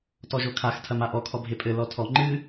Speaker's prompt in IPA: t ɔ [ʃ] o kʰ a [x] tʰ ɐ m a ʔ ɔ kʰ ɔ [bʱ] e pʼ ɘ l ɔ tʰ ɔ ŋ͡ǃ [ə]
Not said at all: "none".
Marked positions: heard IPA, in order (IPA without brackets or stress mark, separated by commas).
ʒ, x, bʱ, ɨ